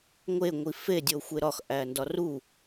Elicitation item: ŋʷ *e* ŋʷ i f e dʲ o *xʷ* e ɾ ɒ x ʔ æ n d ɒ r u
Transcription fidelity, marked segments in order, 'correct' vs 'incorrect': correct, correct

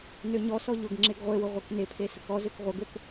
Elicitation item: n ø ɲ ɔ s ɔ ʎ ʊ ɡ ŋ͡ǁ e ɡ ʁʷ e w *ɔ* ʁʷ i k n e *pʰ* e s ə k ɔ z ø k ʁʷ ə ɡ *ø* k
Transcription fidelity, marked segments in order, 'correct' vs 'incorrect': incorrect: ʊ, correct, correct

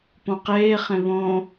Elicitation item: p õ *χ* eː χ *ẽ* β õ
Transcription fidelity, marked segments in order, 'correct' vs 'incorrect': incorrect: q, correct

